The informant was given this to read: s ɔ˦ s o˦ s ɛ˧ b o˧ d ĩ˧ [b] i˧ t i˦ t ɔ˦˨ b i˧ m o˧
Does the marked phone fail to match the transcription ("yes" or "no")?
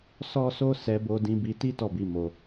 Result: no